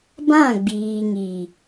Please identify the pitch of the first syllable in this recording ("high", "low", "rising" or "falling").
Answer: falling